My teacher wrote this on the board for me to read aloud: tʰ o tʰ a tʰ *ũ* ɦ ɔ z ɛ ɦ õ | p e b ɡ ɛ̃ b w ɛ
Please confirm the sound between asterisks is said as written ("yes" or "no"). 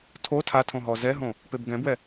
no